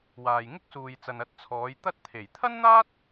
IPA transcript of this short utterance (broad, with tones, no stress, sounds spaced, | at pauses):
w aː˨ j ŋ ɪ˥ k̚ s uː˨ j t͡s ɐ˨ n ɐ˧ t̚ t͡sʰ ɔː˨˧ j t̪ ɐ˥ t̚ t̪ʰ e˨˩ j t̪ʰ ɐ˥ n n̪ aː˥ t̚